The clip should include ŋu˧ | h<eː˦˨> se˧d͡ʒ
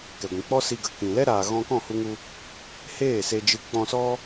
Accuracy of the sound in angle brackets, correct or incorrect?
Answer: correct